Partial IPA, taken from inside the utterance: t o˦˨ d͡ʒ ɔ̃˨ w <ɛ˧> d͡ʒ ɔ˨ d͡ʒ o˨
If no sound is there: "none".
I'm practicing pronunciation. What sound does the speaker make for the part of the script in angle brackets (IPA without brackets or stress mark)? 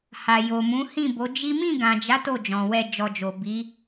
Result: ɛ˧